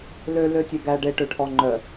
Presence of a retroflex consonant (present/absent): present